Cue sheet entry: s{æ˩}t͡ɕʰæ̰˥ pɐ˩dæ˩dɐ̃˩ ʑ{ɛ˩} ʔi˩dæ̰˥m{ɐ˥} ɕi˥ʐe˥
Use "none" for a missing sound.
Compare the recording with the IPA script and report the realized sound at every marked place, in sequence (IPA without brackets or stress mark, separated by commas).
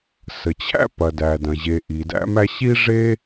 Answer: ə˩, e˩, æ˥